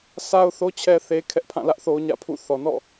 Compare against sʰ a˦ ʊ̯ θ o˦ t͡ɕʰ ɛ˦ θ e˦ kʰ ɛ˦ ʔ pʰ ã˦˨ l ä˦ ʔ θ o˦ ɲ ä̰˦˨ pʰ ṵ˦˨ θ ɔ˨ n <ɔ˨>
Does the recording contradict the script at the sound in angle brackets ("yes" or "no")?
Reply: yes